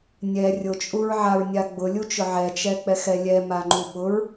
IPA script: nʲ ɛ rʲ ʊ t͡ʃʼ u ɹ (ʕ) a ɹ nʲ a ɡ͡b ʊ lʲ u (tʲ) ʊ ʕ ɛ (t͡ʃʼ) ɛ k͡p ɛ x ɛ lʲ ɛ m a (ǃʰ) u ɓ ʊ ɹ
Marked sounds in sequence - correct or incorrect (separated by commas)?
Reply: correct, incorrect, incorrect, incorrect